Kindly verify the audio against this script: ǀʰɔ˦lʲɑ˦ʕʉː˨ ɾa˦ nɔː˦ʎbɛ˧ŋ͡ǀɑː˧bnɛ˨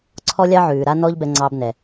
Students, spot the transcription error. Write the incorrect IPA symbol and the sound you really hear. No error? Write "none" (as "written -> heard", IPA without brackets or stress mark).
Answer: none